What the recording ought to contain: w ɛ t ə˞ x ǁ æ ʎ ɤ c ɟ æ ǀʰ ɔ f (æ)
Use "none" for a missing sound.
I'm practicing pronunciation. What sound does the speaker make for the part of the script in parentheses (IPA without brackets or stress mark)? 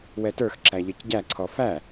æ